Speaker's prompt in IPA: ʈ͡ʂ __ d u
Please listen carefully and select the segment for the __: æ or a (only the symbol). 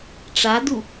a